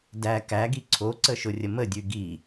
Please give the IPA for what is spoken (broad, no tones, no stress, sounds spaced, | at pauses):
d æ k æ ɡ i ǀʰ o ǀ ə ʃ ʊ rʲ ə m ə dʲ ʉ ɡ i